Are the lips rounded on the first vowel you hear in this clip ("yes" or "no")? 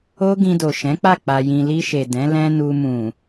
yes